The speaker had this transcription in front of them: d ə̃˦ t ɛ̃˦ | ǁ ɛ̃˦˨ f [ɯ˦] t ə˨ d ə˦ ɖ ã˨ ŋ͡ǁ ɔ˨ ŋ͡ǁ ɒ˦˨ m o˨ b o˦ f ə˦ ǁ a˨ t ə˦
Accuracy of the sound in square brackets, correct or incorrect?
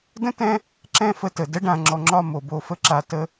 incorrect